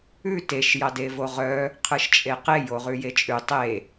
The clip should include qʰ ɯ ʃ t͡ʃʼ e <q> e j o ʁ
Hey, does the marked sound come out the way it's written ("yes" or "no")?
yes